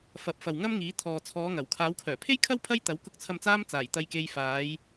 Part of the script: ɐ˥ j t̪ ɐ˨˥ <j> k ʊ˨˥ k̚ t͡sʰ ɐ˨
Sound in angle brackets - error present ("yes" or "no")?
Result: yes